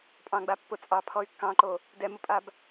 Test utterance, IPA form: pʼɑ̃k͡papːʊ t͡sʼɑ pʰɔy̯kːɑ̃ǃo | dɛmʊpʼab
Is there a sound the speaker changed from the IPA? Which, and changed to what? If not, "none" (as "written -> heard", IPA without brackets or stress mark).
k͡p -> ɡ͡b